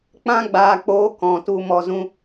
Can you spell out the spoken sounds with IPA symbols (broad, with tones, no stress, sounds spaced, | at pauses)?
k͡p ã˦ ɡ͡b aː˧ k͡p oː˦ k ɔ̃˨ t u˧ m ɔ˧ z ũ˦